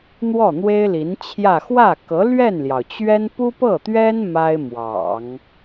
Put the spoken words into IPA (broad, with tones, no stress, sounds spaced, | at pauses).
n̪ w ɔ˥˩ n̪ w e˥ ɪ̯ l i˧˥ n t͡ɕʰ j ä˥˧ x w ä˥˩ k ɤ˧˥ l ɥ ɛ˥˩ n l j ɑ˩ ʊ̯ t͡ɕ ɥ ɛ˥ n p u˥ p ɤ˥˩ t̪ ɥ ɛ˥ n m a˥ ɪ̯ m w ɑ̰˨˩˦ ŋ